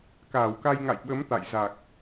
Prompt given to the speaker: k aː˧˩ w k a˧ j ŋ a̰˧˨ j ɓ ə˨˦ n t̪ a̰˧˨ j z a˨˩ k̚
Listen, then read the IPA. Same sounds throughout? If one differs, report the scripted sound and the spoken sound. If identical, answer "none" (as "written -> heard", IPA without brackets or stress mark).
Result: n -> m